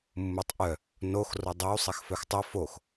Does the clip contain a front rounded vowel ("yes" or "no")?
yes